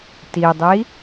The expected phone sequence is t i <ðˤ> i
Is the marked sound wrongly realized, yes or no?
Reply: yes